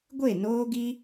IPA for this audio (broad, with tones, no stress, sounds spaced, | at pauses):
ɡʷ e˦˨ n oː˦ ɡ i˦